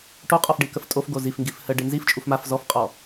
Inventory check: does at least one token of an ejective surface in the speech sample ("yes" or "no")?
yes